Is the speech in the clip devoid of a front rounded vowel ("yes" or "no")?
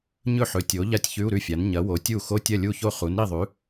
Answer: yes